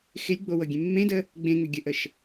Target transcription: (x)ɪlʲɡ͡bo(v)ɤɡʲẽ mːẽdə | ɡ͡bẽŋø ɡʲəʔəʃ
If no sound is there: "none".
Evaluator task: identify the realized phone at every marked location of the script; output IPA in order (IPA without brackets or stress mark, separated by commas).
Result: x, w